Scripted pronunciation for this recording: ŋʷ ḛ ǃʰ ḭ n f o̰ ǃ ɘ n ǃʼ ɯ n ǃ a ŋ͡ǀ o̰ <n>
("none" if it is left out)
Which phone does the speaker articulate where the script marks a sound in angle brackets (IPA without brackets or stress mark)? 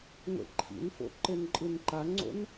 n